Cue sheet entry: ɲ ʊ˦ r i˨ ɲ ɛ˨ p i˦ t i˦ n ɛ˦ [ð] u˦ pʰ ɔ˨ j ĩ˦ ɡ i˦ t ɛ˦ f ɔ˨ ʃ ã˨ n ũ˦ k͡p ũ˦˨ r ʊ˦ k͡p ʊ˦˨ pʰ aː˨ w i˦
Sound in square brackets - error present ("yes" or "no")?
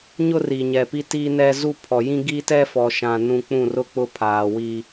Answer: yes